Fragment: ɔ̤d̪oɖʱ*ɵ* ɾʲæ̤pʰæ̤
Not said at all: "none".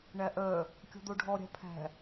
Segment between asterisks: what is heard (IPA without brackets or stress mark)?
ɔ